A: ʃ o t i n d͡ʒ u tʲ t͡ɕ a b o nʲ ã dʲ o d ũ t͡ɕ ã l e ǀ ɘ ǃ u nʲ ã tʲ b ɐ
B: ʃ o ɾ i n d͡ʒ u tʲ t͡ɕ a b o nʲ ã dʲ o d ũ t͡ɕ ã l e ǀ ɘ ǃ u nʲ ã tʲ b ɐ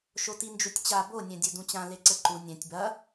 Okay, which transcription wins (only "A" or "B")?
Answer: A